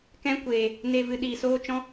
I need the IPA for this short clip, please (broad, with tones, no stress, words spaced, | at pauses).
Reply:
kɛ̃˦kʷeː˧ | ne˧ vɨ˧ɗiː˧ soː˦t͡ʃɔ̃˦